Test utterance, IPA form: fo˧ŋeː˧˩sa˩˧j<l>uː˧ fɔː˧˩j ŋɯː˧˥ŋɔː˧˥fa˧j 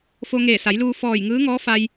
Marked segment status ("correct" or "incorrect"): correct